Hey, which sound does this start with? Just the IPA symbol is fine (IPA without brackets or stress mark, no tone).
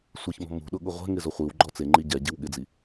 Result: sʷ